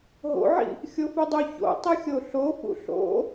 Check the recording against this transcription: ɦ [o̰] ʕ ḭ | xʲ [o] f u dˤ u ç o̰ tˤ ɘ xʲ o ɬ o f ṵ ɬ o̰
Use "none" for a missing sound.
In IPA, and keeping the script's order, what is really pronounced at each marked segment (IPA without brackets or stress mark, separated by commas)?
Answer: o̰, o